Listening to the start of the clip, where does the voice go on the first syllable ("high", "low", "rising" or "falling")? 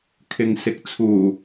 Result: low